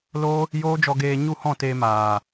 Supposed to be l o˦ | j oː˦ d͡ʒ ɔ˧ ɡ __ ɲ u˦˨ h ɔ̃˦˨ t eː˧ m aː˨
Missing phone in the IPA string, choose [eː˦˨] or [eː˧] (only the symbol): eː˧